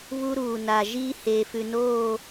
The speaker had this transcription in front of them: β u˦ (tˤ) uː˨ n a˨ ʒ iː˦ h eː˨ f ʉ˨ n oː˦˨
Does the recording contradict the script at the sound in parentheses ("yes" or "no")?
yes